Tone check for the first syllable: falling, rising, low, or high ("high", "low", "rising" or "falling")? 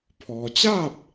low